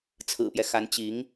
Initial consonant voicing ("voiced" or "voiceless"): voiceless